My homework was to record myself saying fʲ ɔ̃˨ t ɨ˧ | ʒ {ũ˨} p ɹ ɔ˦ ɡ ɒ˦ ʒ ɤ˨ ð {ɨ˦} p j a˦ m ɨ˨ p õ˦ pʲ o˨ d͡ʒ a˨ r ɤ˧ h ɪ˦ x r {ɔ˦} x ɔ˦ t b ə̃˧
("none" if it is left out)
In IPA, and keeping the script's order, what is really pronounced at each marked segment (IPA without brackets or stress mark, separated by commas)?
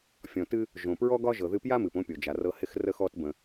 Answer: õ˨, ɨ˧, ə˦